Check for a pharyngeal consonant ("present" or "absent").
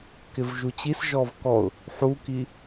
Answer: present